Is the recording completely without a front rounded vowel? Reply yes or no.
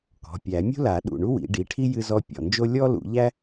yes